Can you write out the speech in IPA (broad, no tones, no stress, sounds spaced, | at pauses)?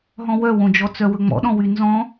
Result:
ɦ ɔ̃ w œ w õ d͡ʒ ɔ t͡s œ w ɵ ŋ͡m ɔ̰ ɗ ɔ̃ w y n z ɔ̃